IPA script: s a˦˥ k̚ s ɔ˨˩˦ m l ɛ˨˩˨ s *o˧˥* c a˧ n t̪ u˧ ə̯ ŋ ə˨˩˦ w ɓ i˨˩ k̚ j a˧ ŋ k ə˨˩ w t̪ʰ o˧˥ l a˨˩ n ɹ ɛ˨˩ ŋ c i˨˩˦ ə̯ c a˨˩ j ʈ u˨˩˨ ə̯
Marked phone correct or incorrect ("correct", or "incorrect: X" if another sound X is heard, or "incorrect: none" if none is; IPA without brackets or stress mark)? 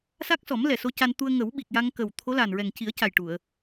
correct